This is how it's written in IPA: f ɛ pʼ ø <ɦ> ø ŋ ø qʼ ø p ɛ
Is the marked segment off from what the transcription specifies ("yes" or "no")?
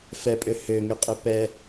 yes